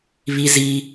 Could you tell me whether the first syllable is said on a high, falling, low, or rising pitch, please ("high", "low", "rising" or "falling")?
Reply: high